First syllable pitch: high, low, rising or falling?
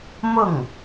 falling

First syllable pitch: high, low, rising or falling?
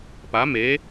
rising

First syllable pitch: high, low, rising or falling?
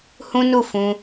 high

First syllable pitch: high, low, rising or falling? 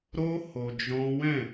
high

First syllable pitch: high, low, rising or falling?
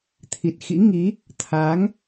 low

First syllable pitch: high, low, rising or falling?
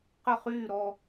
falling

